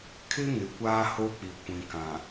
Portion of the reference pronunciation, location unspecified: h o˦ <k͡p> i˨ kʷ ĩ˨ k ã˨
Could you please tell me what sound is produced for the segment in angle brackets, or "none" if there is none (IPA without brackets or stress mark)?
k͡p